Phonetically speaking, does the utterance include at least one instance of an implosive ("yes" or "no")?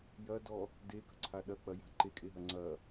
yes